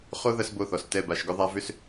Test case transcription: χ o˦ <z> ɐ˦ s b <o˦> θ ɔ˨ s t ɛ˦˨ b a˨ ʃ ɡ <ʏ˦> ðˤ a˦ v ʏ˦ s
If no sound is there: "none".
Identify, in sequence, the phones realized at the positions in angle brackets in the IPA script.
ð, o˦˨, ʏ˦

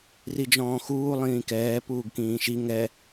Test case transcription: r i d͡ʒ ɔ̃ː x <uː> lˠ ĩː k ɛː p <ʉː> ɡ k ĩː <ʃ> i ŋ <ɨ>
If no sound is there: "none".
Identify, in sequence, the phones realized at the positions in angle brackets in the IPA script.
uː, uː, ʃ, ɛ

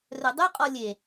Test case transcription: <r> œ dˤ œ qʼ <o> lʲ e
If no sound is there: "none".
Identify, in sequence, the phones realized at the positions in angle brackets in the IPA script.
r, ɔ

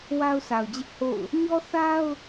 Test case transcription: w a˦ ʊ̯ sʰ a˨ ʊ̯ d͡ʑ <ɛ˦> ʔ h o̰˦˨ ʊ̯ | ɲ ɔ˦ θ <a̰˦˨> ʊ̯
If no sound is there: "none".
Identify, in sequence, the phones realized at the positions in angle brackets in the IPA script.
ɪ˦, a˦

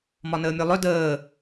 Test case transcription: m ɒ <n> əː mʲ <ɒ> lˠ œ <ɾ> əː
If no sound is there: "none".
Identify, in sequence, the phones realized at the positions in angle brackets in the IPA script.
n, ɒ, d

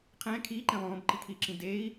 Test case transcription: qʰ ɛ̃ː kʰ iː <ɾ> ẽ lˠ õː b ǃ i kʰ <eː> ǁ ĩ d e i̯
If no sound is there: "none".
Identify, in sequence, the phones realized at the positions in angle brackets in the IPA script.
ǃ, iː

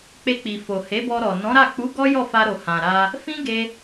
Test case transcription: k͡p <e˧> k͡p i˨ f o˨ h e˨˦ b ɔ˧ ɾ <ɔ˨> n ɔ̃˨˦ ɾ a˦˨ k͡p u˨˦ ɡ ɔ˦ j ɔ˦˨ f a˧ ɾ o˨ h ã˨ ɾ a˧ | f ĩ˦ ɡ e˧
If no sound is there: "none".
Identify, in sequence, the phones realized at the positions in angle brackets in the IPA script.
e˧, ɔ˨

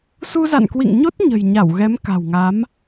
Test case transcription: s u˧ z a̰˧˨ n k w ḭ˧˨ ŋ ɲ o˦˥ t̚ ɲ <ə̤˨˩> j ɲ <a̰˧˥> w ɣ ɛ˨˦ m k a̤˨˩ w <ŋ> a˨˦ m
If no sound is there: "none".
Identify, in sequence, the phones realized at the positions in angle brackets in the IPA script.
ə̤˨˩, a˧˩, ŋ

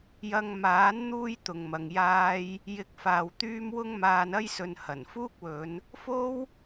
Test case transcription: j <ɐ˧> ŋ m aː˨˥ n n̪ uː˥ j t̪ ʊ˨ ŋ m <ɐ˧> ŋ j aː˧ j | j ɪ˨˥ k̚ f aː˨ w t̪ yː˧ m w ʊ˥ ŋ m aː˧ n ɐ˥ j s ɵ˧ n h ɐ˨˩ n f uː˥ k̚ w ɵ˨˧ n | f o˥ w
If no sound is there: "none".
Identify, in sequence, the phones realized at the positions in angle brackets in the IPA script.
ɐ˧, ɐ˨

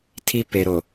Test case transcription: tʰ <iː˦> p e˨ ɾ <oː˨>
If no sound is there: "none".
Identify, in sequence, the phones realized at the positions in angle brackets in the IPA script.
i˦, o˨

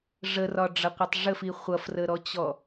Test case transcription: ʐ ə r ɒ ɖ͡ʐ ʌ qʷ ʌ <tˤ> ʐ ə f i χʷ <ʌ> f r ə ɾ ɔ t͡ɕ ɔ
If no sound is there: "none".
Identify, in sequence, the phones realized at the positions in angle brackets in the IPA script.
tˤ, ʌ

